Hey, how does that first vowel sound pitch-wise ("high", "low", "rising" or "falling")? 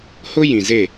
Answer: high